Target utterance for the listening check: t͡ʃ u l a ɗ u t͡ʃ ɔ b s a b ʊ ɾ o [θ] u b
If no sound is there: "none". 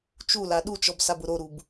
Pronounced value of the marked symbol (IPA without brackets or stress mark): ɾ